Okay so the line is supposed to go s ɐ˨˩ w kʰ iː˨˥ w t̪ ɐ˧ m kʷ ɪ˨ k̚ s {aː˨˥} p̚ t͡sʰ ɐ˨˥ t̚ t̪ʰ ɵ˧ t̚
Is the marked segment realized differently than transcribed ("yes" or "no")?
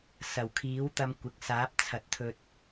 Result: no